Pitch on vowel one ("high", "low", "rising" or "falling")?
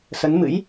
rising